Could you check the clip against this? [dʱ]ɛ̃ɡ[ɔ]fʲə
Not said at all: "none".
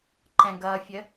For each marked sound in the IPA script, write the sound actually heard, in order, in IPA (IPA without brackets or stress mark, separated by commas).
ǃ, ʌ